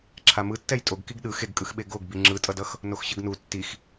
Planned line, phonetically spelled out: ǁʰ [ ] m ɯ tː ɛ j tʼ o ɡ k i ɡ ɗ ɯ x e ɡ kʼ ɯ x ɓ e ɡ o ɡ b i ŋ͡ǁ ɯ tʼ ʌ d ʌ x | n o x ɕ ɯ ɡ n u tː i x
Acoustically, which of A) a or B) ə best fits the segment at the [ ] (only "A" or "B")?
A